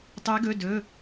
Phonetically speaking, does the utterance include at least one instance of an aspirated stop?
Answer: no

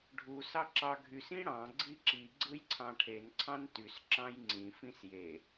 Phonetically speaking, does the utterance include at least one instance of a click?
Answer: yes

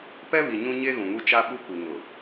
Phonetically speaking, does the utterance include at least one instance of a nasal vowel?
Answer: yes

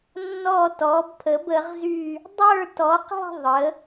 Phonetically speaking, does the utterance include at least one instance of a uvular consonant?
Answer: yes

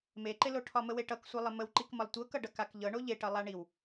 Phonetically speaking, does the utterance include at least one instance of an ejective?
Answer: no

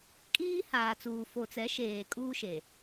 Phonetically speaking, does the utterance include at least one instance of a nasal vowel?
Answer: no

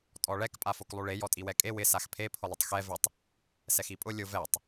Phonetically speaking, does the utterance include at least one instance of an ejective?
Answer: yes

